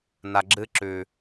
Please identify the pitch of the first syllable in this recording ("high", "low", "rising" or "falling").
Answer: low